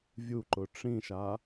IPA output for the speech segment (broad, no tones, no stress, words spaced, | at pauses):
vʲuǃʊ ʈ͡ʂĩʃa